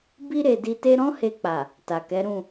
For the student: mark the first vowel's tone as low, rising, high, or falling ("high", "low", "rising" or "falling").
high